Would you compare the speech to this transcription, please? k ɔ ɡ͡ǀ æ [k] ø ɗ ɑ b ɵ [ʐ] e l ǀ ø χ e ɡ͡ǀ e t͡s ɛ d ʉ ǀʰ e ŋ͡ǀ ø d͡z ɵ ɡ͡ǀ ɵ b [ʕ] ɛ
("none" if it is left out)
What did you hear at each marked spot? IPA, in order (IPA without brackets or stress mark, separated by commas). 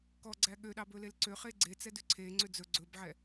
ɠ, l, ʕ